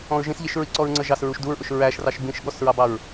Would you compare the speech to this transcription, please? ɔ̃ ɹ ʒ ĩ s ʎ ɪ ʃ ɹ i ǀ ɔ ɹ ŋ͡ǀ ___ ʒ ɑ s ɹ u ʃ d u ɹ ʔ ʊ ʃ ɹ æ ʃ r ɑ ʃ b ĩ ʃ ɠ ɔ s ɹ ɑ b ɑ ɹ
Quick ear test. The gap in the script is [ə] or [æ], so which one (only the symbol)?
ə